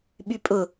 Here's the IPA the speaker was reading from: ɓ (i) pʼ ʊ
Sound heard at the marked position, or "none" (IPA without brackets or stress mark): y